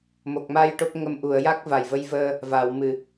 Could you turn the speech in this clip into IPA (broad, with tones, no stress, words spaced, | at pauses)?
mo˨˩k̚ma˧j ʈo˦˥p̚ŋə˧m ʔu˨˩˨ə̯ja˦˥k̚ va˨˩jvə˧jvəː˧ | va˨˩˨w mɨ˨˩˨